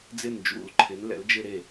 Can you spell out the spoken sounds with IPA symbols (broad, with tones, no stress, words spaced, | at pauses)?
d͡zɪ˥˩nd͡ʒṵ˧˩˧lǃʰɪ˩˥n lɛ̰˩˥ld͡ʒɪ˥˧ɾe˥˩